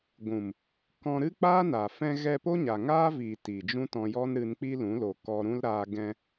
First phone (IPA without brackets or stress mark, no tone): ɡʷ